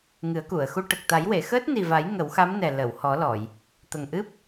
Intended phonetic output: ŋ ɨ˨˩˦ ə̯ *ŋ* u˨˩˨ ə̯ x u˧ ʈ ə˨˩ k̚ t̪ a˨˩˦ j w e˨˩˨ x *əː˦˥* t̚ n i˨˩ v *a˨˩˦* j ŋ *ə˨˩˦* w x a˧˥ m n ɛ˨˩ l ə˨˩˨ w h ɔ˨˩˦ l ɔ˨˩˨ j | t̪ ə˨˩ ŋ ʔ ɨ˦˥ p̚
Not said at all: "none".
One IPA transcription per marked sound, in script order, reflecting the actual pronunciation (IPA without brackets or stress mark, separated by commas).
k, əː˦˥, a˨˩˦, ə˨˩˦